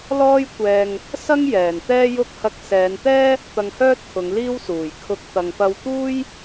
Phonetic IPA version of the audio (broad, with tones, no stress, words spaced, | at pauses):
lɔː˥jkʷɛː˧ŋ | sɐ˥ŋ jɛː˨˩nt̪ɛː˥jʊ˥k̚ hɐ˧k̚sɛː˨˧nt̪ɛː˥ | t̪ɐ˧ŋhœː˥t̚kʰʊ˨˧ŋ liː˥wsuː˨˩j kʰʊ˧k̚ t̪ɐ˨ŋpɐ˧w t̪uː˥j